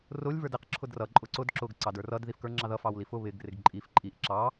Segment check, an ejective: present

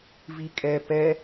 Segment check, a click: absent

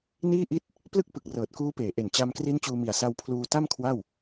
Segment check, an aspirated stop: present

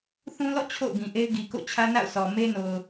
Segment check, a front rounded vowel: absent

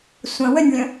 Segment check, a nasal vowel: present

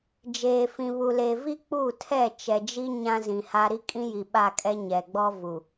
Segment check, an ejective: present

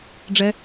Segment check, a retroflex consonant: present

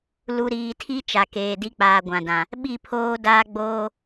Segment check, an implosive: present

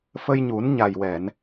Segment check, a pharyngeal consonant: absent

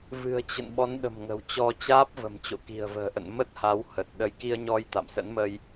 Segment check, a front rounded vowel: absent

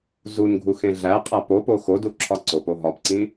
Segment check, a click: present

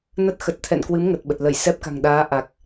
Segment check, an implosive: present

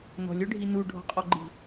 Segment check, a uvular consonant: present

